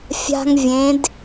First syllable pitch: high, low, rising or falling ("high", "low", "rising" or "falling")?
high